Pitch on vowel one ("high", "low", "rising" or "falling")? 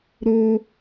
high